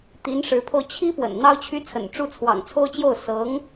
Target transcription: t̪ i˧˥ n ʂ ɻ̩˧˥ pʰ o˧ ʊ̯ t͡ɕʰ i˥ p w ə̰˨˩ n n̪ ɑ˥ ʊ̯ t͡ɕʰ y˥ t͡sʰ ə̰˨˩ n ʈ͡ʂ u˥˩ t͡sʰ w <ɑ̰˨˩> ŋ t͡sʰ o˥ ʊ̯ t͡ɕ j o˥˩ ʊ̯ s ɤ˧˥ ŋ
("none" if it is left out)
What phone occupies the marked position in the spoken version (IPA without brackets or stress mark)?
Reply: ɑ̰˨˩